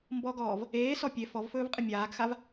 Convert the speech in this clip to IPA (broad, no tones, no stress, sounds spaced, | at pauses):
m b ɔ ɡ ɔː v | eː s ɔ pʲ e f ɔ v f ɵː v qʼ ɪ mʲ aː ɡ x a v